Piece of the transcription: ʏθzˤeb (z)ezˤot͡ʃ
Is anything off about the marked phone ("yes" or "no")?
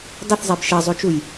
yes